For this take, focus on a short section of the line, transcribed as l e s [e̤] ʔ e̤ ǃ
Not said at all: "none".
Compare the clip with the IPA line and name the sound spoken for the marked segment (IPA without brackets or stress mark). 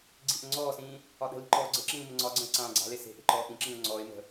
e̤